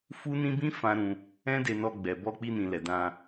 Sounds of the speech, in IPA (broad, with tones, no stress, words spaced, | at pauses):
fu˦nĩ˦ bĩ˦ fã˦ ɾũ˧ | ɛ̃˦de˧nɔ˧ɡ͡bɛ˨ bɔ˧k͡pi˧nĩ˨ lɛ˨dã˧